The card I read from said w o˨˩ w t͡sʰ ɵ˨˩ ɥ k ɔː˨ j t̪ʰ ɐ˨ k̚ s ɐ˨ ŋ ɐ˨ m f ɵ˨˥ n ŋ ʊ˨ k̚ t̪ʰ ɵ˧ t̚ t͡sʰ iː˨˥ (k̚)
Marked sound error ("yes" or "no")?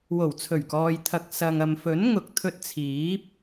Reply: yes